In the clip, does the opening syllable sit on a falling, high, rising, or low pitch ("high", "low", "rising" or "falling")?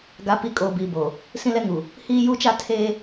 rising